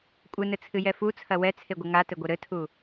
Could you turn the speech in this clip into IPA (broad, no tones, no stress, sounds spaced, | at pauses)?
kʷʼ ɘ n ɘ t͡sʰ ɨ j ɛ f u t͡sʰ ɐ w ɛ t͡sʰ e ɡʷ ɘ ŋ a t ɘ ɡʷ ɘ ɾ ɘ tʰ u